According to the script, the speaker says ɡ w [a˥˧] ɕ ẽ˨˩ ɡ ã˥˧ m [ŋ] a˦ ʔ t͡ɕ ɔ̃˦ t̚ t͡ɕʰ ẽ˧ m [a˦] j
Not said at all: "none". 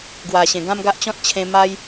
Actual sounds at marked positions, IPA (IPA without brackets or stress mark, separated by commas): a˨˩, ɡ, a˦